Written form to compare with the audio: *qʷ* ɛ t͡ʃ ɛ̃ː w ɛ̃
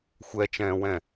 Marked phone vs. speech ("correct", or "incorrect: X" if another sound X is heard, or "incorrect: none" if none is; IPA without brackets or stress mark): incorrect: xʷ